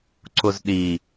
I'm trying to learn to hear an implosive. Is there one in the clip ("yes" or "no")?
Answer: yes